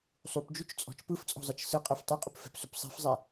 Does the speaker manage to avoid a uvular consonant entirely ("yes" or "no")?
no